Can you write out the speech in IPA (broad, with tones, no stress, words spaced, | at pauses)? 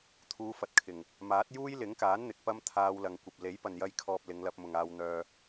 t̪ʰuː˨˧fɐ˨t̚kʰɪ˨˩ŋ | maː˨˥t̚ juː˥jlɪ˨˥ŋkaː˨˥n n̪ɪ˨k̚pɐ˥mt̪ʰaː˧w lɐ˨ŋkʷɐ˨p̚ le˨˥jpɐ˨njɐ˧j kʰɔː˧p̚lɪ˨˧ŋlɐ˧p̚ mʊ˨ŋaː˧wn̪œː˧